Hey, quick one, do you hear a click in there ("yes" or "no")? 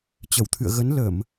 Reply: no